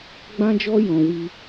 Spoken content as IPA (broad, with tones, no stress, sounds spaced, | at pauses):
ɡ͡b ã˦ d͡ʒ ɔ˦ j ɔ̃˧ w i˦